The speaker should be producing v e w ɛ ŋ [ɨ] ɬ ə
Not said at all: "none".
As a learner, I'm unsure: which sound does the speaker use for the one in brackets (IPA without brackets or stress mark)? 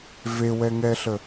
ɛ